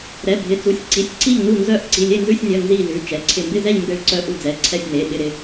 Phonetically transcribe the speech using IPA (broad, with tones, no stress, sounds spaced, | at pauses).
ɾ ɛ˩˧˩ bʱ ɪ˩˧˩ t͡s u˩˧˩ sʲ ǀ i˩˧˩ sʲ ǀ i˦˨ ʎ n u˦˨ n z œ˦˨ ʔ ǀ i˩˧˩ lʲ e˦˨ n z ʉ˦˨ sʲ nʲ œ˩˧˩ n z i˦˨ l ʉ˩˧˩ t͡ʃ ɛ˩˧˩ ǀʰ ɪ˦˨ m b ɪ˦˨ z ɛ˦˨ ʎ m b e˦˨ ɭ ǀ œ˦˨ ʔ u˦˨ d͡z ɛ˩˧˩ ǀʰ ɛ˦˨ sʲ n e˩˧˩ ɓ ɪ˦˨ ɾ ɪ˦˨